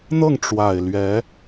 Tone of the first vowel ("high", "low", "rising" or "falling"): falling